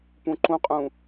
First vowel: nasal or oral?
nasal